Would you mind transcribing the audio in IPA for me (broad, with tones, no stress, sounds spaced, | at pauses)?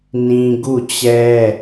n ĩ˦ ɡ u˦˨ t͡ɕ ɛ˦